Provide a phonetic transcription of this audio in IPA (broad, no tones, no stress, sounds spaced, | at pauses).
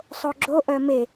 sˤ o ɡ͡ǁ o ʔ œ m e